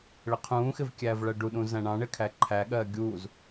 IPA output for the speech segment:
ɭ ɪ qʰ ũː x ɪ v kʲ æː v ɭ ɜ ɖ u ɗ ũ z æ̃ ɳ ɑ̃ ɳ ɪ kʰ æ ǃʰ æ ɠ ɜː ɡʲ uː z

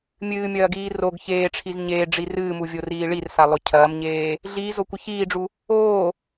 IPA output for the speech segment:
mʲ ɨː mʲ ɐː ɡ iː r o ɡ ç eː ʈ͡ʂʰ i z ɲ eː ɖ͡ʐ i r ɨː m u vʲ o r iː ɭ i r s a lˠ o cʰ ɐː m ɲ eː | ɮ iː z o kʷ ɘ ç iː ɖ͡ʐ u | oː

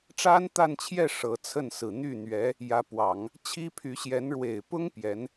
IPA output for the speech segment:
ʈ͡ʂ a˥ n t̪ a˥˧ n t͡ɕʰ j ɛ˥˩ ʂ ɤ˧˥ t͡sʰ ə˥˩ n s ɹ̩˨˩ n̪ y˥˩ n̪ ɥ ɛ˧˥ | j ä˧˥ p w ɑ˨˩˦ ŋ | t͡ɕʰ i˥ pʰ y˧˥ ɕ j ɛ˧˥ n ɻ w e˨˩ ɪ̯ p ʊ˥ ŋ p j ɛ˧˥ n

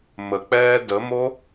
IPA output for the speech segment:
m ə k͡p ɛː d ə m o

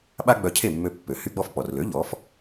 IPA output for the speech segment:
ɓ a˥ ɡ͡b œ˧ cʰ e˥˩ mː ø˧ pː ø˩ h y˧ ɡ͡b ɔ˧ f k͡p ɔ˩ r l ø˩˥ ʎ ɔ˩˥ f

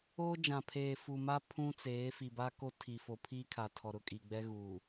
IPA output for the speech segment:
oː˦ d͡ʒ ã˨ pʰ eː˨ f u˨ m a˦ pʰ ũ˦ t͡s eː˨˦ f i˨ b a˦ k o˦ tʰ i˨ f o˨ pʰ iː˦ kʰ a˨ tʰ ɔ˨ ɾ ʊ˦ kʼ i˨ ɡ͡b ɛ˦ ɣ uː˨

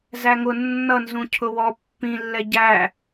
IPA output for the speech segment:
z æ ŋ ʊ nː ʌ n z ũ cʰ ʊ w ɔ pː ĩ lː ɛ ɟ æ

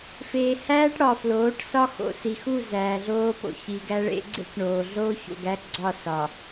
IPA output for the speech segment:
f eː˨ h æː˦ ʈ ɽ ɒ˨ f l oː˨˦ ʈ s ɒ˦ x o̰˨ s i˨ x u˦˨ z æː˨ ɮ oː˦ p o̰˨ ç i˨ ɡ æ˦ ɭ ḛ˦ ɡ͡ǀ ḛ˦ k ɳ oː˨ ɮ oː˦ ç o̰˨ ɡ æ˦ ɡ͡ǀ ɒ˦˨ s ɒ˨

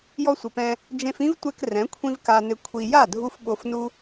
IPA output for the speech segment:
j ɔ˧ sʷ ɪ˨ p ɛ̃˧ | d͡ʒ ẽ˧ f ĩ˦ v tʷ ɛ˧ k r ɛ̃˨˦ kʷʰ ĩ˦ v k a˧ n ɪ˧ kʷʰ i˧ j a˦˨ dʱ u˧ f ɓ o˧ f n u˦

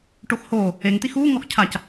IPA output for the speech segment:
ʈ o x h oː | e ŋ t̪ i x uː ŋ ɔ x cʰ a c

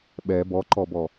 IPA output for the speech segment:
ɓ ɛ b ɔ ǃ ɔ b ɔ

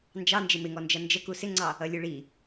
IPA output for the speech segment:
n d͡ʒ ɑ n d͡ʒ ɪ m ɪ ŋ ɔ n d͡ʒ ʌ n d͡ʒ ə k u s ɪ ŋ͡ǀ ɑ | ʌ lʲ u ɭ i

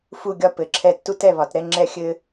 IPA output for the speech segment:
f u˦˨ ɡʲ ɒ˦˨ p ɘ˨˩˦ ǁʰ ɛ˦˨ tː u˥ t ɛ˦˨ β ɒ˨˩˦ t ɾ ɛ˥ ŋ͡ǁ ɛ˥ xʲ ɘ˥

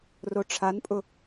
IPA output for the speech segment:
r o ʈ͡ʂʰ a n pʼ ʊ

